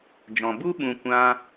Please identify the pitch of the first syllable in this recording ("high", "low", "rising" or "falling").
low